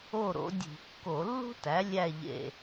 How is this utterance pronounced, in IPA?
o˥˨ ɾ o̰˩˥ dʲ ṳ˧˩˧ kː o˧˩˧ lː ṳ˥ t æ˩˥ lʲ æ˥˨ ʎ ḛ˧˩

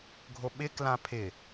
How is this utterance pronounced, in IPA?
ɡʱ o ɓ ɪ k l ã pʰ ɪ

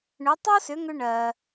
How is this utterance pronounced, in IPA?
ɳ ʏ˩˥ tˤ o˥ s ʏ˩˥ ŋ ʏ˧ ɳ ɜ˩

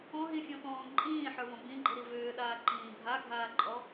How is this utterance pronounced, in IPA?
ɔ̃ ɦ ĩ fʲ ɔ̃ t ɔ̃ː ǃʼ ĩː ħ ə˞ v ɔ̃ b ĩ ɡ͡ǃ i ɾ i v ʏː ɗ aː ǃ ĩː bʱ a ɡʱ aː ǃʼ ɔ

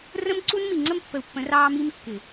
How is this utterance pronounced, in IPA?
r ə̃˦ m ǀ u˦ n m i˨ ŋ͡ǀ ə˦ m pː ə˨ u̯ pː ə̃˨˦ r ɑː˦ m i˦ m kː ɪ˨

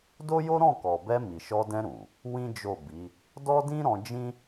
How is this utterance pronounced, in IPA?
d o˦ j o˦ ɾ ɔ̃˦˨ k ɔ˨ b ɛ˧ m i˨ ʃ ɔ˧ d ɛ̃˧ ɾ ũ˨ | w ĩ˦ d͡ʒ o˦˨ b i˨˦ | d ɔ˦ d ĩ˦ ɾ ɔ̃˧ d͡ʒ ĩ˦

